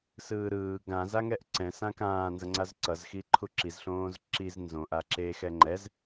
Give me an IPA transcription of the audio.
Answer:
sɯːɾɯː ɡã zaŋɛʔǀɛ̃ sãkãː nzʌŋ͡ǀazǀʌz xiǃʰuǁiz ɬõːzǁiz nzõ ʔaǁe xɛŋ͡ǃɛz

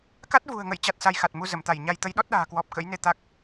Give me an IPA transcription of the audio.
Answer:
ka˦˥t̚vṳ˨˩ə̯ŋə̰˧˨j t͡ɕa˦˥t̚sa˧jxa˨˩t̚ mu˧zə˧˩mt̪a˧˩jɲa˧j t̪ə˨˦jɗɔ˦˥t̚ɗa̤ː˨˩kwɔ˨˩p̚ kə̰˧˥jne˧ t̪a˦˥k̚

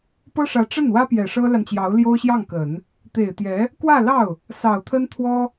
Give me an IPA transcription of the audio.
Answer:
pɤ˥ʂä˧˥ʈ͡ʂə˥˩nwä˥ pjɛ˨˩ʂɤ˥la˨nt͡ɕjɑ˧˥ʊ̯ ljo˥ʊ̯ɕjɑ˥˩ŋkə˨˩˦n | t̪e˨˩ɪ̯t̪jɛ˧˥ | kwä˥˧lɑ˥˩ʊ̯ | sɑ˨˩ʊ̯t̪ʰə˥nt̪ʰwɔ˥

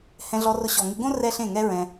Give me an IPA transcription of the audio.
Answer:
hɛ̃˧ɮɔ˧rʊ˧ ɕɔ˨ŋɪ˧ɡõ˦ rɛ˦ɬẽ˦˨ŋɛ˦ɹɛ̃˧

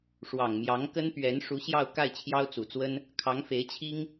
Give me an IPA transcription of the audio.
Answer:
ʂwɑ˨˩ŋmjɑ˧˥ŋkə˥npɥɛ˧˥n ʂu˧˥ɕjɑ˥˧ʊ̯ ka˥˩ɪ̯t͡ɕʰjɑ˥ʊ̯t͡su˨˩t͡swə˥n | kʰɑ˧˥ŋfe˧˥ɪ̯t͡ɕʰi˥ŋ

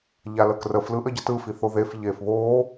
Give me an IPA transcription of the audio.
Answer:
ʎaləkrəf lɯʔəɟətɯ fiθoðef ʎeːfβoː

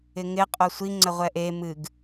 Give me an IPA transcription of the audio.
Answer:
ɪŋɪ qʼosʷi ŋ͡ǀəʁʷɛʔe mɨɡ

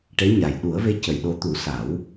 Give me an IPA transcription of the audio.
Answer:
ʈe˧˥ɲa˨˩j ɗu˨˩˦ə̯ve˧˥ cə˨˩˦jɗo˧˥ t̪u˨˩˦ sa˨˩˦w

